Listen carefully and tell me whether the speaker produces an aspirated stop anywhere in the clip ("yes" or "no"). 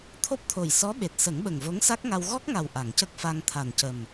yes